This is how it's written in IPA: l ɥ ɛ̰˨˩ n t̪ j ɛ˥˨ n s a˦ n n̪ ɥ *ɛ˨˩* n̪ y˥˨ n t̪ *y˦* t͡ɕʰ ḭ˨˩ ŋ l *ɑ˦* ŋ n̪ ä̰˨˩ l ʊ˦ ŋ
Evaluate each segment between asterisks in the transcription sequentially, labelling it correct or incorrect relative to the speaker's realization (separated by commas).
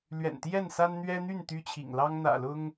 incorrect, correct, correct